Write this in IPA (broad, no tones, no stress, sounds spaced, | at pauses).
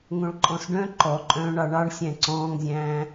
ŋ õ ɭ ǃʼ ɔ̃ s ɖ œ̃ ǃ ɔ ǃʼ œ̃ː ɳ ɑ ɳ ɑ ɳ sʲ æ̃ ǀ ɔ̃ː ŋ zʲ æ̃ː